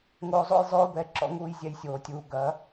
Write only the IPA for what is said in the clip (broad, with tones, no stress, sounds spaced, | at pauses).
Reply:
ŋ oː˧ zˤ o̰˦ j zˤ oː˦ b ɛ˧ ǁ ɔ̰˧ ŋ uː˧ j zʲ ɛ˧ j sʲ oː˨ tʲ uː˨ ɡ ɐ˨˦